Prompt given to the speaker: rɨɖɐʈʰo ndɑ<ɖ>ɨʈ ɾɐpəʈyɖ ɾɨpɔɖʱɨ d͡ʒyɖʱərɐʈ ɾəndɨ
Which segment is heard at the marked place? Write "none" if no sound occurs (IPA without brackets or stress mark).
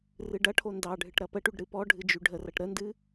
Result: ɖʱ